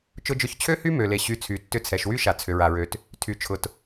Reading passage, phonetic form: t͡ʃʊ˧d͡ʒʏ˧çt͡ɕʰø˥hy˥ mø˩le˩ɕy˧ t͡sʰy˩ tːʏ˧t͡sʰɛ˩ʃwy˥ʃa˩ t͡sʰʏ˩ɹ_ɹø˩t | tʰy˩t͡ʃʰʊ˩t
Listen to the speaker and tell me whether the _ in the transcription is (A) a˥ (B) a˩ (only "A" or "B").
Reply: B